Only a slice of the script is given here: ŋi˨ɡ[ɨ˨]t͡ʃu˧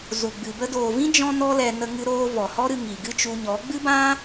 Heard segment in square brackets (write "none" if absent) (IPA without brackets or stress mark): ɨ˦